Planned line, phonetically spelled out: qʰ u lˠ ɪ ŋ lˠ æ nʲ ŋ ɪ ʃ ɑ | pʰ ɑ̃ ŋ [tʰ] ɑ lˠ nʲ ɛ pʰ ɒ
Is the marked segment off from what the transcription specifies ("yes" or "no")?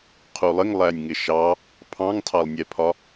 no